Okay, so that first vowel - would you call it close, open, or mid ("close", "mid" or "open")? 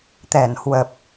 mid